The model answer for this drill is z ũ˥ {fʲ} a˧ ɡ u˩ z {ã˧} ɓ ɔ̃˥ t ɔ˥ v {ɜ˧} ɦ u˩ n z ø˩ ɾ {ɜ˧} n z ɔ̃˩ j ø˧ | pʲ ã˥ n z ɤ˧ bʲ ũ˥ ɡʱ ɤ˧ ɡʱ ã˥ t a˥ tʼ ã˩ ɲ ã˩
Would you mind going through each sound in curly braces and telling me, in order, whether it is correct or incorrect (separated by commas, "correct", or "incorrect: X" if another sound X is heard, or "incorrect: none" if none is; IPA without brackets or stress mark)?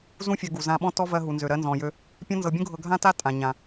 correct, correct, correct, correct